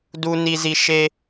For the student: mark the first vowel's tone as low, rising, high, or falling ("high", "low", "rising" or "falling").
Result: low